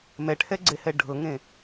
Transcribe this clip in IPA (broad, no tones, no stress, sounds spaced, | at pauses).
m ɛ ʈʰ ɛ ɡ͡ǀ e h ɛ ɖʱ ɤ ŋ ẽ